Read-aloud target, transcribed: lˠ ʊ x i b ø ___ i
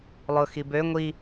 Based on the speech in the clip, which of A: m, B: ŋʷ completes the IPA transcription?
B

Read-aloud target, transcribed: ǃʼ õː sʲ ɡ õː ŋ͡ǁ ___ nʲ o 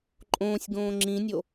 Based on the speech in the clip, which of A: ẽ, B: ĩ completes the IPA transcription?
B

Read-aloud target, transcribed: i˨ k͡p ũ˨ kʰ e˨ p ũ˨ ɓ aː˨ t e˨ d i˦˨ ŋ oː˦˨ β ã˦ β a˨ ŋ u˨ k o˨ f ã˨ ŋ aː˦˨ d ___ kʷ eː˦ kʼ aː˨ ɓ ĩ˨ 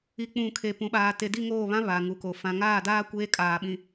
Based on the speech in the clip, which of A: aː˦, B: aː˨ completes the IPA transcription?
A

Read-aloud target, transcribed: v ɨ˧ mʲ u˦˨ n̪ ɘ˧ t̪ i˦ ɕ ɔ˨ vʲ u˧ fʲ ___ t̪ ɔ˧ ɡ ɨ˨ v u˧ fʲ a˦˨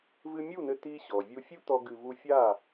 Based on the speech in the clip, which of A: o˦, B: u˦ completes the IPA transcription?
B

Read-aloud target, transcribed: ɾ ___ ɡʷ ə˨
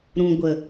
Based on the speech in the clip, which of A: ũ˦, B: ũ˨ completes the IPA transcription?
B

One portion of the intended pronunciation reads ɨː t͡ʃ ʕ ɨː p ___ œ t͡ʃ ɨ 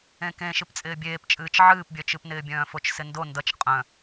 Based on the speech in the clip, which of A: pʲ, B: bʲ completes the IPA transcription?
B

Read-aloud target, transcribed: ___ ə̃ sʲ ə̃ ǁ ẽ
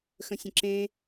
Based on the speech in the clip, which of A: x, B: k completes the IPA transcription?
A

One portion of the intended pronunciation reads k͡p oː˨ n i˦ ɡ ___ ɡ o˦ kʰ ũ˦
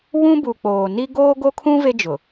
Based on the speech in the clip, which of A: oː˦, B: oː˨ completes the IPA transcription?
A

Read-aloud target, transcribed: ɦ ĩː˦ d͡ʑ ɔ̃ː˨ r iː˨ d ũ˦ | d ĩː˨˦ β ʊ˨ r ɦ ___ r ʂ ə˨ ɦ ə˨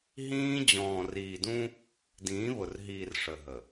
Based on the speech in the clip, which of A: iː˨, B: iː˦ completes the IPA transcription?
A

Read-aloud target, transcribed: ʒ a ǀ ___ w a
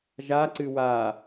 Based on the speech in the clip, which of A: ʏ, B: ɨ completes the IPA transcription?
B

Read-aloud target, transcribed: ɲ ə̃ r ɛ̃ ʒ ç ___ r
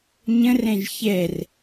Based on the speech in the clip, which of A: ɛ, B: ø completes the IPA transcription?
A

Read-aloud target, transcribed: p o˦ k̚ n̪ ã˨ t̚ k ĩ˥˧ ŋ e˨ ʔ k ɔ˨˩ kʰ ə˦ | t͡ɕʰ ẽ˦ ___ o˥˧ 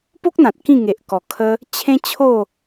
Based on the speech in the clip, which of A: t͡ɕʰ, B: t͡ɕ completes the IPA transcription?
A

